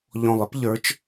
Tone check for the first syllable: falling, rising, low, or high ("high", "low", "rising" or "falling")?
low